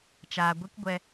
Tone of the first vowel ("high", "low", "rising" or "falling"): low